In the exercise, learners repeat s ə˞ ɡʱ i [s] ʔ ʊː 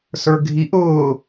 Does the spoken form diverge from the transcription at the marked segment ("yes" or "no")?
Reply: yes